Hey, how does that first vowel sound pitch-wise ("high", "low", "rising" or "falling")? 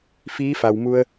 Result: rising